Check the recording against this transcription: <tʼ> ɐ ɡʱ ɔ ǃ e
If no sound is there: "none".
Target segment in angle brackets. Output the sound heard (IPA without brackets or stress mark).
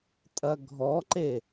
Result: tʼ